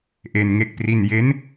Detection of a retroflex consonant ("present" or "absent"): absent